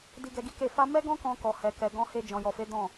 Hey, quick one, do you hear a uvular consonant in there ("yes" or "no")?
no